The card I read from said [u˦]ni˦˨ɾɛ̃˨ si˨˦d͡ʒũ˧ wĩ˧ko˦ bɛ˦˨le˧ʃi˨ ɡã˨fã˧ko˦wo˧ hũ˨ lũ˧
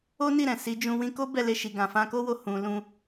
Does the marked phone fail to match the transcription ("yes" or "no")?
yes